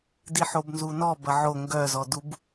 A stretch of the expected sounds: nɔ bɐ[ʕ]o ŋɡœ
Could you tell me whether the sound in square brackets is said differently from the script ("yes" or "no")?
no